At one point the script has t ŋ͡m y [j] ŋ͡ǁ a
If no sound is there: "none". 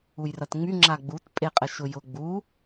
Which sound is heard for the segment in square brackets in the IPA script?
none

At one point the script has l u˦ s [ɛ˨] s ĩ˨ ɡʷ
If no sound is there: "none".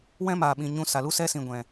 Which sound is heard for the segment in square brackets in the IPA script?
ɛ˦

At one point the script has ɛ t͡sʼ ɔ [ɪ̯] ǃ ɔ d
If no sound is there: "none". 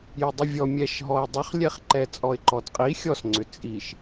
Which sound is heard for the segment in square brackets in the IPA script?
ɪ̯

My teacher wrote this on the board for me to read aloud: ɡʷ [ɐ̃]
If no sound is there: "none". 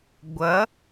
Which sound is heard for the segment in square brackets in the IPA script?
ɐ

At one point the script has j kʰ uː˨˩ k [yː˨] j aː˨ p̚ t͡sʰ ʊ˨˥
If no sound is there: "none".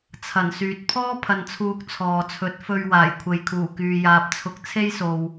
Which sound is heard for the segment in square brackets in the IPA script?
yː˨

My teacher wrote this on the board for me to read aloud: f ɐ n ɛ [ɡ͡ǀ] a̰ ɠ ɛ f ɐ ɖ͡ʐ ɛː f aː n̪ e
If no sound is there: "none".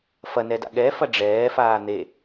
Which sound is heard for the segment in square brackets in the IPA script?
d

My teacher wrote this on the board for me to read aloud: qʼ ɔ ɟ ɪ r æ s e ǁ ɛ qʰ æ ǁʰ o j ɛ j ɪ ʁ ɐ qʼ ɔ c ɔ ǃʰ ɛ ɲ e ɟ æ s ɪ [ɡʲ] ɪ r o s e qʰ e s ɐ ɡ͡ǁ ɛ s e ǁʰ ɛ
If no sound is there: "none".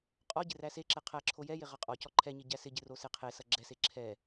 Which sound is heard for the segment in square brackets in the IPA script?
ɟ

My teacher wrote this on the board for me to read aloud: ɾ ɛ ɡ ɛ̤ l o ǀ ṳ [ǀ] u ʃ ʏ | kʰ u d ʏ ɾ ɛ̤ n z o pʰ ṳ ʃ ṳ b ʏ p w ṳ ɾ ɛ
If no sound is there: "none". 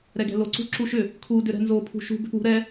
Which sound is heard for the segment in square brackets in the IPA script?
ǁ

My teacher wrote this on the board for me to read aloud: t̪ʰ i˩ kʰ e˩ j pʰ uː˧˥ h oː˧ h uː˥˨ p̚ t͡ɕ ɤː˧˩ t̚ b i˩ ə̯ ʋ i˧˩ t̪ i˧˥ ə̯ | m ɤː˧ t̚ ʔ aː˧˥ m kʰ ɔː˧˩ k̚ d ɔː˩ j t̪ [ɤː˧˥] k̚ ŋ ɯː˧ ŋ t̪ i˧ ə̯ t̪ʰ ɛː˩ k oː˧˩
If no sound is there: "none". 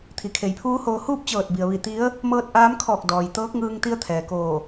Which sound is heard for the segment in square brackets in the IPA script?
ɤː˧˥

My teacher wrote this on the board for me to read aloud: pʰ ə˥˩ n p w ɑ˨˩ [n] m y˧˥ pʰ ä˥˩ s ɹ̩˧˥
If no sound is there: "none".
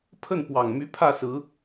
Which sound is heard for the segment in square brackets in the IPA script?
ŋ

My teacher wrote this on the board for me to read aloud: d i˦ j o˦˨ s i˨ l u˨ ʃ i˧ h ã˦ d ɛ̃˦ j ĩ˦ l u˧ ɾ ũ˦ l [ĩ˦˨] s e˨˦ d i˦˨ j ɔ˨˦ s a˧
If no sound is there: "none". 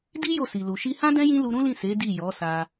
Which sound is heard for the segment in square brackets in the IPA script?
ĩ˦˨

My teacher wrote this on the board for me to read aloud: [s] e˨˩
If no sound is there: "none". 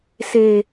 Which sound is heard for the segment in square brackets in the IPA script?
s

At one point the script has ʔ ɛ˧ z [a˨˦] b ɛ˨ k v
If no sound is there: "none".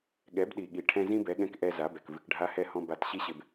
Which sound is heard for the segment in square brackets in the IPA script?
a˨˦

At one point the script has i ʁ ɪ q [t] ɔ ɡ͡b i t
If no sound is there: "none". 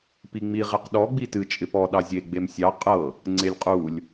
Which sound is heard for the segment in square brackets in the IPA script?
ɗ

